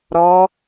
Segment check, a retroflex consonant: absent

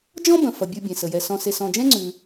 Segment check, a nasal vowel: present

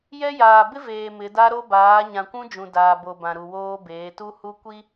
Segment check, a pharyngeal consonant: absent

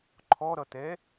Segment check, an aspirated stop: present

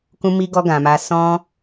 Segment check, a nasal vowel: present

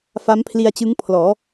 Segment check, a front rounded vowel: absent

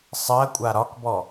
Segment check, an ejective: present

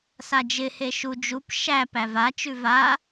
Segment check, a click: absent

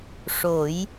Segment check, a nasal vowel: absent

